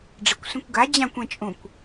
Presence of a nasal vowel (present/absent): present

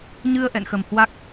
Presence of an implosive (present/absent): absent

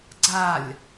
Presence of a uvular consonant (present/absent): absent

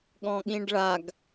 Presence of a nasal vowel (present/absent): present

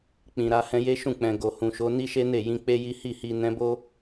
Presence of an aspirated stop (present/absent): absent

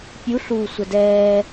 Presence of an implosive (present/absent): absent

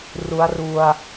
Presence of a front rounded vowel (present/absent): absent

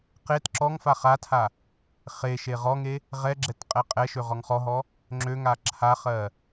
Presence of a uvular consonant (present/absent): present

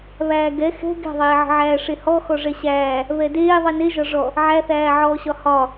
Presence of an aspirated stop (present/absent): absent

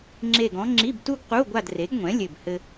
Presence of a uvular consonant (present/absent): present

